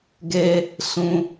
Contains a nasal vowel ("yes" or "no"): yes